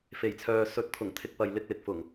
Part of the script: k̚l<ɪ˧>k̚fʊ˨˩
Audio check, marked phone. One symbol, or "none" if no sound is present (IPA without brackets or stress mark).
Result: ɪ˨